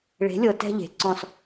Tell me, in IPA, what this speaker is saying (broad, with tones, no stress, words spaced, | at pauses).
ɭe̤˨˦lʲɤ˨ tɛ̤˦ʎe̤˨ǀɔ̃˦s